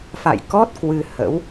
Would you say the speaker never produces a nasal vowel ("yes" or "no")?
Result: yes